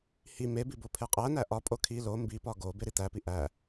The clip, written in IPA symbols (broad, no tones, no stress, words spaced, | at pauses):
hi mebi bopʰeqʼænæ ʔɒpʼo kʰi lo mbipɒ ɡo beɾit̪æpi ʔæ